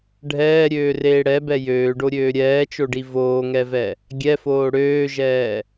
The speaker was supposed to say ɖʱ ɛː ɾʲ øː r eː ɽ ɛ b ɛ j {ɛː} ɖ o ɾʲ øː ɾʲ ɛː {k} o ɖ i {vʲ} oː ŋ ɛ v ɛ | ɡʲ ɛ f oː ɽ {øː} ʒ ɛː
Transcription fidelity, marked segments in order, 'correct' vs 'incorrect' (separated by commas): incorrect, incorrect, incorrect, correct